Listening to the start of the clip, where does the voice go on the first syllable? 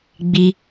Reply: high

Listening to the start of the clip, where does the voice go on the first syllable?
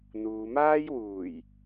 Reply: low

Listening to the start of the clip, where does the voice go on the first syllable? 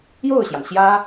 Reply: falling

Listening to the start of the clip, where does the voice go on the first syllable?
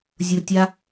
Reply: low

